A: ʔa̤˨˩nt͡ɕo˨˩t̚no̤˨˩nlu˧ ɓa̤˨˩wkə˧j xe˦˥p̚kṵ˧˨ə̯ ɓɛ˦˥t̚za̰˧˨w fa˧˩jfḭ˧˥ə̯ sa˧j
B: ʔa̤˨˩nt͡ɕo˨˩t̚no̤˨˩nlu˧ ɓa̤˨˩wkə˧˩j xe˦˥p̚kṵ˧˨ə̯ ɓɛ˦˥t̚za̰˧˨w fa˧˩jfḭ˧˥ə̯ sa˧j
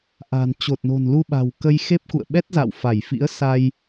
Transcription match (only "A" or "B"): A